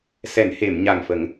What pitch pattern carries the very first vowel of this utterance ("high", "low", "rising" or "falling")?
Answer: low